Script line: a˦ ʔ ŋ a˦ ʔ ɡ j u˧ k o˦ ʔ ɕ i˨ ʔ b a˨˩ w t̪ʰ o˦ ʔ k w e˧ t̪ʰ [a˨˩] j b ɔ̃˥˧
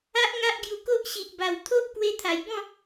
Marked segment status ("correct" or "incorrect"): correct